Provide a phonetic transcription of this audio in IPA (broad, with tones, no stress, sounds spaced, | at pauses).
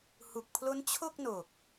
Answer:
h u˨˩ k̚ pʰ l o˦˥ n t͡ɕʰ o˥˩ k̚ n o˨˩ k̚